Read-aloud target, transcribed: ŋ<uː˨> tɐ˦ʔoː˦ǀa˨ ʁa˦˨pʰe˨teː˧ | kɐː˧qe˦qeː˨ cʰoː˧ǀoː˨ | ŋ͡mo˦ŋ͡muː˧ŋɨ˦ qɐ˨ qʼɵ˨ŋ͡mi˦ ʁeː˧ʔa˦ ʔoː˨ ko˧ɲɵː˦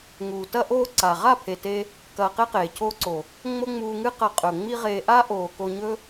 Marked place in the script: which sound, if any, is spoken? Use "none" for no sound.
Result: uː˨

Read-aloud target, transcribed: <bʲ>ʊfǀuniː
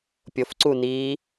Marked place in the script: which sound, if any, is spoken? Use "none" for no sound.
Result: pʲ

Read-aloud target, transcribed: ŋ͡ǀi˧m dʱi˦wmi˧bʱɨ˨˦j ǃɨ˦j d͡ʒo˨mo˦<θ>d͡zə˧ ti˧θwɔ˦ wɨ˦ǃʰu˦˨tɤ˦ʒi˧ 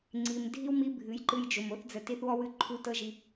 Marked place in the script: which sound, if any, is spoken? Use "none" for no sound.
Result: θ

